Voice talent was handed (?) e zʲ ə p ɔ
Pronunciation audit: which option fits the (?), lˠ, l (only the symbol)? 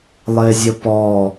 lˠ